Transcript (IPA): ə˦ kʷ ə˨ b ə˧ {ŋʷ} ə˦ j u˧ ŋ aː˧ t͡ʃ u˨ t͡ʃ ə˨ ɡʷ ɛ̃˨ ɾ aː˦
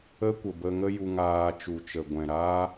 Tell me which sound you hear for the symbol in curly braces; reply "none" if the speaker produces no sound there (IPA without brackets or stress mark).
ŋ